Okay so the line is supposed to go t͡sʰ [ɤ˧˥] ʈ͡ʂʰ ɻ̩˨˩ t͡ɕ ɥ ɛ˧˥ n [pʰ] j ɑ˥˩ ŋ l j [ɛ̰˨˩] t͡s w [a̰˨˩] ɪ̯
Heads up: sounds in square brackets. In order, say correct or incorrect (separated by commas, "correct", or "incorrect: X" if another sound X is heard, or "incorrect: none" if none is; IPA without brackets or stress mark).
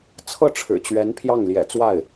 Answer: incorrect: ɤ˥˩, correct, correct, incorrect: a˥˩